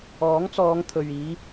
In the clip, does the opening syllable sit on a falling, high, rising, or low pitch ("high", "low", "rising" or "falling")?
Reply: rising